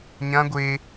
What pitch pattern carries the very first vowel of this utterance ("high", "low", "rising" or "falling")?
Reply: high